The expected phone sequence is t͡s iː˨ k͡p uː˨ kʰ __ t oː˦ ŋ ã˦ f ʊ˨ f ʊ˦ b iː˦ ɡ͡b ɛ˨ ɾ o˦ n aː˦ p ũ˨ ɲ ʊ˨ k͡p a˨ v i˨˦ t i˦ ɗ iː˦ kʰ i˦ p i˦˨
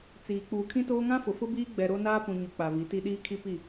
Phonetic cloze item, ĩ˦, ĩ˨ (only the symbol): ĩ˦